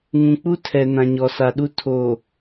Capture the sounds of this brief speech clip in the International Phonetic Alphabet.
ŋ ũ˨ k͡p u˦ tʰ ɛ˨ n ã˨ ɲ ɔ˨ s a˨ ɗ u˦ tʰ o˨

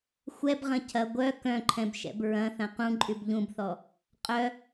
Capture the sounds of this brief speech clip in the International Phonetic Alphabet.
xʷ ɛ b ʁ ɐ̃ cʰ ɐ ɡʷ œ k œ̃ ǃʰ ɛ̃ b ʃ ɛ̰ b ɹ ɐ̃ θ ɐ̃ q ũ ǃʼ y b ʎ ũ b θ ɔ | qʼ œ

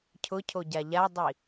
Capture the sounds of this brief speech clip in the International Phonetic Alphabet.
cʰ ʊ cʰ o ɟ a ʎ a dˤ i

